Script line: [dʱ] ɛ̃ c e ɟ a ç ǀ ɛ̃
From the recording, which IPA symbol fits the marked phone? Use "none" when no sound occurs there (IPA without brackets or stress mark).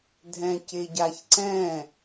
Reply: dʱ